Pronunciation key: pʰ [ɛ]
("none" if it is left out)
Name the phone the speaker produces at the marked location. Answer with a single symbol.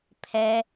ɛ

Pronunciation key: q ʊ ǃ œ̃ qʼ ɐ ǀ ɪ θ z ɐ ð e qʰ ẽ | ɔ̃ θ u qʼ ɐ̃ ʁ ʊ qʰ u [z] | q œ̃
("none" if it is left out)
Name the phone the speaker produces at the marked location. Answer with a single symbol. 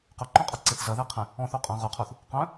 θ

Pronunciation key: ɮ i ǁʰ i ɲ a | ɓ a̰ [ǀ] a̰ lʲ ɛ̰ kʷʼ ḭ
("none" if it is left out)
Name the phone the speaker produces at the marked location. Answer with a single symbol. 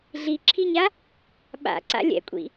ǀ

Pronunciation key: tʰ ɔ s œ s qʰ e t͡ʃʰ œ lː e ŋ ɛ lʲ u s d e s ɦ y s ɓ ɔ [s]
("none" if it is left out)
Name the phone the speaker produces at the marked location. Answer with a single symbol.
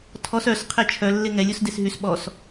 s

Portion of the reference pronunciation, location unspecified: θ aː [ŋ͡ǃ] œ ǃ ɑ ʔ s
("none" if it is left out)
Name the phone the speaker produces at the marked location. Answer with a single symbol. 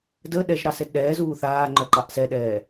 ŋ͡ǃ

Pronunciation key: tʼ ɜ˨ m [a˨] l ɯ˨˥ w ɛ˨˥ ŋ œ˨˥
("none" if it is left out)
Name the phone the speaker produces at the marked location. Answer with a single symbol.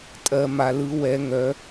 a˨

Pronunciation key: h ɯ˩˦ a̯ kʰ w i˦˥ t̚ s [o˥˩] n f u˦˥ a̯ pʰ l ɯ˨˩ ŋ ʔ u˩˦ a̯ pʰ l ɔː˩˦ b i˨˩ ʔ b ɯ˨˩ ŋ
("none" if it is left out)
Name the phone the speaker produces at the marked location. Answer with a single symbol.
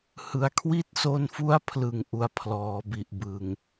o˧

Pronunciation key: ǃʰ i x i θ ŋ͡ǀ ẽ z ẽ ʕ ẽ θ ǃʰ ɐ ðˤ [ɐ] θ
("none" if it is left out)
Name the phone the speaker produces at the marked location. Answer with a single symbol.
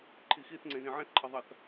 ɐ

